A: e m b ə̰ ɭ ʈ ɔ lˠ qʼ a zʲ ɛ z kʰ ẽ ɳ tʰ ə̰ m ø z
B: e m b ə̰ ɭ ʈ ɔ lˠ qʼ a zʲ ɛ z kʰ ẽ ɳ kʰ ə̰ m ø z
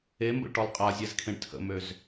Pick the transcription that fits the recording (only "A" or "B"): A